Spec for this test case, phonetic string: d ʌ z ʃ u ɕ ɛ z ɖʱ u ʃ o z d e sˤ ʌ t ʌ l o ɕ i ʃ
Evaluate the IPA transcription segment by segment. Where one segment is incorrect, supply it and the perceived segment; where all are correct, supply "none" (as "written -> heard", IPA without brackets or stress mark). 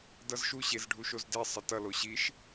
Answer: ɛ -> e